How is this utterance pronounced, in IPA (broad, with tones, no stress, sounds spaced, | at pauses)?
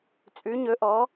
t͡sʼ ʉ˩˧ ɲ ɵ˩˧ ʔ ɔ˩˧